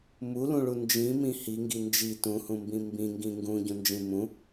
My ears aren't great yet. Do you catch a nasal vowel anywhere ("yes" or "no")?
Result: yes